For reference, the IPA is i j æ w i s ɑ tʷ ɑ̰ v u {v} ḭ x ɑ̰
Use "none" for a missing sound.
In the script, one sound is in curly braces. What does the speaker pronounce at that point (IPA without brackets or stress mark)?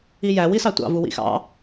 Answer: w